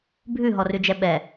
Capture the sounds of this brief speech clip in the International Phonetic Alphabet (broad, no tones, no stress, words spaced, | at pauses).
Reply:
bʱʉɦɔrʉd͡ʒɛ ɓɛ